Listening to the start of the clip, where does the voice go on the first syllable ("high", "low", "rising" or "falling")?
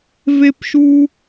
high